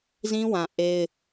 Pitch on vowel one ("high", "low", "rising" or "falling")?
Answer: high